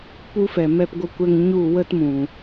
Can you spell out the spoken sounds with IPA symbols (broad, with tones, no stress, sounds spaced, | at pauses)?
p u˦ f ɛ˨ m ɛ˧ p ɡʷ ə˧ kʷ ɛ˧ ŋ ɲ u˦˨ w ə˦ t m ũ˨